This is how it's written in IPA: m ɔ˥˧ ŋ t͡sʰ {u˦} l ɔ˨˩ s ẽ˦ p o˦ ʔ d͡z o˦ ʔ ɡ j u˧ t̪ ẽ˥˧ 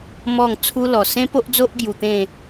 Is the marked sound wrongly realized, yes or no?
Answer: no